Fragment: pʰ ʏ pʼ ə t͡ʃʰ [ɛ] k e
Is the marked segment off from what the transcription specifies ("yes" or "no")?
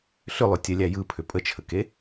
yes